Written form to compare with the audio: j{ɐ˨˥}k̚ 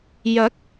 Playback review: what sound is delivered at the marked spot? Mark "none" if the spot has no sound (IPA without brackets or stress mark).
ɐ˨˥